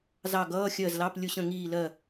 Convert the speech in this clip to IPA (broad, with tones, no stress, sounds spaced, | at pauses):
z ɑ˦˨ ɡ ʌː˧˥˧ xʲ ɜ˦˨ z l ɑ˧˥˧ p lʲ ʊ˦˨ ɕ ə̃˦˨ ŋ iː˦˨ l ɜ˦˨